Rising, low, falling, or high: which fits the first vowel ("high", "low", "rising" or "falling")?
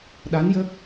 rising